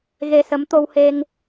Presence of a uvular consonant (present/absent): absent